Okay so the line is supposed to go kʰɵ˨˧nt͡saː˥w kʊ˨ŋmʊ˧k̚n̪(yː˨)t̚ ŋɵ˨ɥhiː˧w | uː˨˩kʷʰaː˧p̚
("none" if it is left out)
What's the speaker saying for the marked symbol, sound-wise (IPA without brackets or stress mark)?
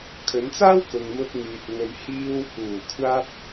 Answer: yː˨